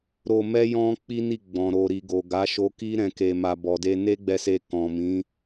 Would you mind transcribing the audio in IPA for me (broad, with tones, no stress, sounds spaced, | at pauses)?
ɾ o˧ m ɛ˦ j ɔ̃˦ k͡p i˦ n i˦˨ ɡ͡b ɔ̃˨ ɾ o˨ ɾ i˨ ɡ o˨ ɡ a˨˦ ʃ o˧ k i˦ ɾ ɛ̃˧ k e˧ m a˧ b ɔ˨ d e˧ n e˦ ɡ͡b ɛ˧ s e˧ k ɔ̃˨ m ĩ˨˦